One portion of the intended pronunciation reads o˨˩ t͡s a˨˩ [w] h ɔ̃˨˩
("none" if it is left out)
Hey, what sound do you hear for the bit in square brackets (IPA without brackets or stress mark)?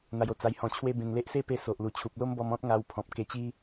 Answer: j